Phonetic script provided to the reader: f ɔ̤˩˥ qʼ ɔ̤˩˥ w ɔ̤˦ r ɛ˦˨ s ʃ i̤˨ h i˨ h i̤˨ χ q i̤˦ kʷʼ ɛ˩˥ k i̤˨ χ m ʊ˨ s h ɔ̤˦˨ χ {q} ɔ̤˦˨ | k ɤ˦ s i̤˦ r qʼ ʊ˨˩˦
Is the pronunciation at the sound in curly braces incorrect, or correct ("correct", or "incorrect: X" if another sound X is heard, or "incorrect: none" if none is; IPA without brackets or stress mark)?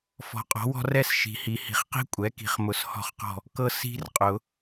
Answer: correct